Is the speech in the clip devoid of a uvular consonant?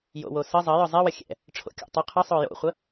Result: no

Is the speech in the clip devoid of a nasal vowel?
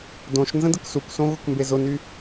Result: no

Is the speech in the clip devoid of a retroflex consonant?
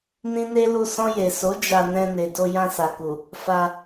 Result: yes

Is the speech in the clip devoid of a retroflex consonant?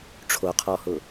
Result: no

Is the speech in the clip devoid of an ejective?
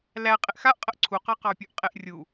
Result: no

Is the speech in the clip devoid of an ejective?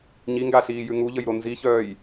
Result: yes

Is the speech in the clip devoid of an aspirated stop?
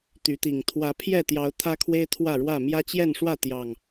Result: no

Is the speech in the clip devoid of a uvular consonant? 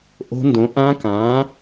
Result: yes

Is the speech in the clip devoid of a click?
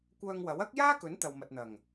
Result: yes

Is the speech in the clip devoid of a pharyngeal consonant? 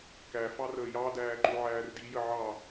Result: no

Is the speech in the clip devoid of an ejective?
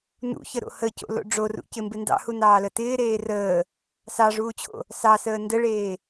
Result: yes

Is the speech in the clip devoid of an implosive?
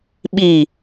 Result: no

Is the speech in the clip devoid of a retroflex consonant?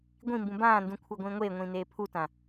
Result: yes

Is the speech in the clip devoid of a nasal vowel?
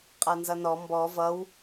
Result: yes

